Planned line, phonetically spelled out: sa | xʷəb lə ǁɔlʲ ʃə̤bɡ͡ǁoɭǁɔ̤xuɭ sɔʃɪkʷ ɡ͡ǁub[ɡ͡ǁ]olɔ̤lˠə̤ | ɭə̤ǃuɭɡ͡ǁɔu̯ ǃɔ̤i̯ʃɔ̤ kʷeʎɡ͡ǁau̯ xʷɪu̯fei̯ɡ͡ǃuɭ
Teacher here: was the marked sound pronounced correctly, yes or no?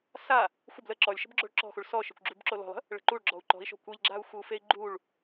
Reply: no